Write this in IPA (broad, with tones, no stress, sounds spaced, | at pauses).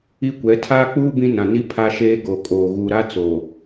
i˦ kʷ ɛ˨˦ tʰ aː˦ k͡p uː˦ b ĩ˦ n ã˨ n i˦ pʰ a˦ ʃ eː˦ ɡ o˨ kʼ oː˨ ɣ u˨ ɾ a˦ t͡s o˨